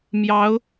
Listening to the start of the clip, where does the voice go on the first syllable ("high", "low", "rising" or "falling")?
rising